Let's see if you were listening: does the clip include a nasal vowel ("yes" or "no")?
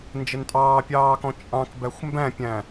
yes